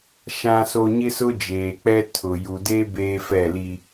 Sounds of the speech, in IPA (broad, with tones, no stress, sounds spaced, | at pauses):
ʃ ã˨ s o˨ ɲ ɪ˦ s ʊ˦ d͡ʒ eː˨ k͡p ɛ˦ tʰ ʊ˨ j u˨ d e˦ b eː˦ f ɛ˦˨ l i˦